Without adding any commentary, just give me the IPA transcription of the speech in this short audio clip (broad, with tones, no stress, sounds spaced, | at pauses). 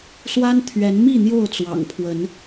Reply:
s w a˦ n t̪ʰ ɥ ɛ˨˦ n m i˥˨ n̪ j o˥˨ ʊ̯ t͡s w ɑ̰˨˩ ŋ pʰ w ə˨˦ n